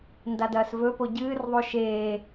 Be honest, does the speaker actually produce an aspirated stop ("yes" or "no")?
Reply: no